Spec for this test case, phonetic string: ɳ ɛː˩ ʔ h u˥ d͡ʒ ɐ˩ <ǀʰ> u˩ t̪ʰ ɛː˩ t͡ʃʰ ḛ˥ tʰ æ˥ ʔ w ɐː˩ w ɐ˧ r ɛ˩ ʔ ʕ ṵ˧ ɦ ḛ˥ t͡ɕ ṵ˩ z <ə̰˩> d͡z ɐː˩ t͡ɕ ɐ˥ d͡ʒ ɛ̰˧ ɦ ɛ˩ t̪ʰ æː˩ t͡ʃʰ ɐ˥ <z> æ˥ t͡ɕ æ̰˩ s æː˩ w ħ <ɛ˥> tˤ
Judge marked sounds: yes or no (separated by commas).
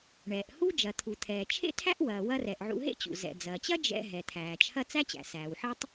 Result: no, no, no, yes